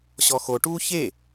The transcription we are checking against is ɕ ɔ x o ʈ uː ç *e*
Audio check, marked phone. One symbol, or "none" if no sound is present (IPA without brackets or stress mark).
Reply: e